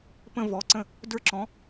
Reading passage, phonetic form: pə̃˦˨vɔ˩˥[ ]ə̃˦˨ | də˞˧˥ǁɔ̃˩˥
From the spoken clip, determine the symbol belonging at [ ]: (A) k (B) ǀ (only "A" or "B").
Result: B